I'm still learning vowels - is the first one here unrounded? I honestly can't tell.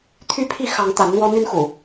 no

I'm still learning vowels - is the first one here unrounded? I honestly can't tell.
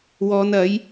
no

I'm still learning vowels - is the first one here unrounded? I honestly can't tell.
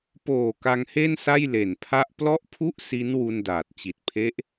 no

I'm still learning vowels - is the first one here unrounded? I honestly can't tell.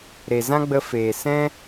yes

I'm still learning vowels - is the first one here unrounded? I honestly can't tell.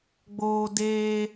no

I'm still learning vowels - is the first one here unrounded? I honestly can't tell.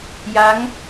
yes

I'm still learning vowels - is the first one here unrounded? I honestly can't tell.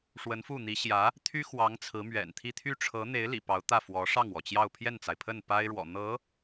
yes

